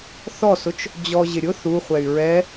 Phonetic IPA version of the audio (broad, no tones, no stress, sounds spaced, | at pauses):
θ ɔ s ʊ t͡ʃ | d͡ʑ ɔ ʑ ɪ ɾʲ ʊ θ u χʷ ɛ y̯ ɹ ɛ